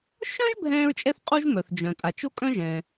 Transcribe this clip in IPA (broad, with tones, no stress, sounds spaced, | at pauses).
ʃ œ̃˥ ʒ bʱ ɛ̃ː˥ ɹ t͡ʃʼ ɛ˥ θ qʼ u˥ ʒ m œ˩ θ d͡ʒ œ̃˩ tʼ a˩ t͡ʃ o˥ kʼ œ̃˥ ʒ ɛ̃ː˩